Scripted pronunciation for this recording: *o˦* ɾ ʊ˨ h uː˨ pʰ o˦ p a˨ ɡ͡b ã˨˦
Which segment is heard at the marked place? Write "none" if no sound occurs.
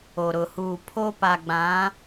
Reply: o˨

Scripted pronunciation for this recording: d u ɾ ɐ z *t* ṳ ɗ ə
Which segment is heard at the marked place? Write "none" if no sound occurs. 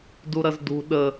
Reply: d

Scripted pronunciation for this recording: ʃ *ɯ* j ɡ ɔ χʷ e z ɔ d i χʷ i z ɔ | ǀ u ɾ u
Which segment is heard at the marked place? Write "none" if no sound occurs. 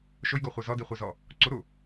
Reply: ʊ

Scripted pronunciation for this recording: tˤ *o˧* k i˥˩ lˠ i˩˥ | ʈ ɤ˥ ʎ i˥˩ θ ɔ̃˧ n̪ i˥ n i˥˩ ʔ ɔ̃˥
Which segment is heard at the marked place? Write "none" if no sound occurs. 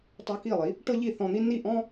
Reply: u˧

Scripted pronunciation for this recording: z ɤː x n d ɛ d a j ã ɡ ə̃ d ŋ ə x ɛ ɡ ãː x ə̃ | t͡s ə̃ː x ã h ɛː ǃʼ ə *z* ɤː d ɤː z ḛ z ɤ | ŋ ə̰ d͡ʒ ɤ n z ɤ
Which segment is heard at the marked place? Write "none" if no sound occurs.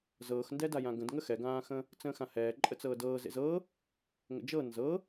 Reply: t͡s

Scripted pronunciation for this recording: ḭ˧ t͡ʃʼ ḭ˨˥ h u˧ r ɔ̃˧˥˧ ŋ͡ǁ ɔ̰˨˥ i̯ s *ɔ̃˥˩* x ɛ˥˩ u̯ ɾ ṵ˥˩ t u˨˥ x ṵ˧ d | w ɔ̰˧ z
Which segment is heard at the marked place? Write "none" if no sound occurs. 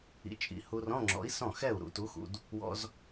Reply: ɔ̃˥˩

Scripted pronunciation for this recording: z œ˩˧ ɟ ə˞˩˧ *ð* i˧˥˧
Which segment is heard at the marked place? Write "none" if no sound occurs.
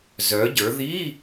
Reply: ð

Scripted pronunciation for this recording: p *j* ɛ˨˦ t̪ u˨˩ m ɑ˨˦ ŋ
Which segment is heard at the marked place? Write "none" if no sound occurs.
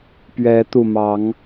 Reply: ɥ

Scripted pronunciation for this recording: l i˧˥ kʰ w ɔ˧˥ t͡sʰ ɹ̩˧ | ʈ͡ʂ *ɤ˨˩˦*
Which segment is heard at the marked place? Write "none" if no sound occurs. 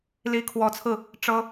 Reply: ɤ˥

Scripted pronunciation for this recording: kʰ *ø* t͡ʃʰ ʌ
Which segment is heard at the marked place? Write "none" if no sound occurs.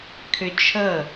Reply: ø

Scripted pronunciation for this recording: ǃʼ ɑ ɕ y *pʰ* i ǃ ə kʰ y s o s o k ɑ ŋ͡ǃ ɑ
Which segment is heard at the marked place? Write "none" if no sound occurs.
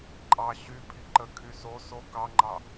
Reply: pʰ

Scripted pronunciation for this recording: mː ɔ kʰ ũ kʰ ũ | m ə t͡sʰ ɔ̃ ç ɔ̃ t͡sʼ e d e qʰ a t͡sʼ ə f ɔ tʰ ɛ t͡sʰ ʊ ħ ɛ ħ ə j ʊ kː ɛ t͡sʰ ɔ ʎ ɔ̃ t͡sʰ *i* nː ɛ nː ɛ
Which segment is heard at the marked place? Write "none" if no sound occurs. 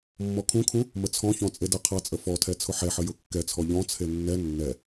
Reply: e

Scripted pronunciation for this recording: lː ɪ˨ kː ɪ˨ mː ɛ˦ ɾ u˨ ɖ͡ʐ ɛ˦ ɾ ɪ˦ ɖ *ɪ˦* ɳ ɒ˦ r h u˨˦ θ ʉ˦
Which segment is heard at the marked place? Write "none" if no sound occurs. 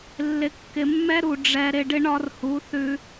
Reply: ɪ˦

